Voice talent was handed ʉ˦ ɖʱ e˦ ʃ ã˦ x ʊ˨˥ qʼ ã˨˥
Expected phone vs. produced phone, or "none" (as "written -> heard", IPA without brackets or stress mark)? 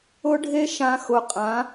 ʉ˦ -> ʊ˦